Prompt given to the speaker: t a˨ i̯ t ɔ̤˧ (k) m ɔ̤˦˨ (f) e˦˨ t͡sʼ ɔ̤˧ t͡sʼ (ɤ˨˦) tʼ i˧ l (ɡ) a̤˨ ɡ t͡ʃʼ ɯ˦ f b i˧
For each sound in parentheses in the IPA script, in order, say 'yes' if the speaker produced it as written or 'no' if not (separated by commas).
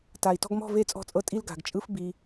no, no, no, yes